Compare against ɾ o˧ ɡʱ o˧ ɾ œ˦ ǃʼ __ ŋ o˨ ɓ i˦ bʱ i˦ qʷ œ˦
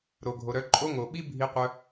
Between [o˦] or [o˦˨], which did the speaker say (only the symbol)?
o˦